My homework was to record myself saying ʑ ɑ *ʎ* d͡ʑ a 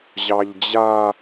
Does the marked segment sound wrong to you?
no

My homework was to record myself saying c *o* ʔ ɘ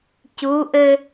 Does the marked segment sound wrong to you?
yes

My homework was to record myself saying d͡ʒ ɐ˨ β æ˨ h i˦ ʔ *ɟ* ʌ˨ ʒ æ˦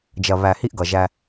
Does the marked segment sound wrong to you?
yes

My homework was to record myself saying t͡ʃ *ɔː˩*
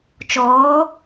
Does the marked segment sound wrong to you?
yes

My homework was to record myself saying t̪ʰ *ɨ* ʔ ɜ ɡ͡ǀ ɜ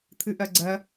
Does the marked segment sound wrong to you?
no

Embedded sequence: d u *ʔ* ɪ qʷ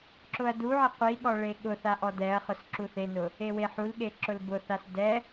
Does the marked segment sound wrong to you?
yes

